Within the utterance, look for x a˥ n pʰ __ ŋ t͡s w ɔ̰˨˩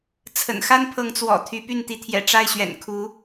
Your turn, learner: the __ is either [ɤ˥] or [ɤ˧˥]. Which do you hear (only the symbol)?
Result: ɤ˧˥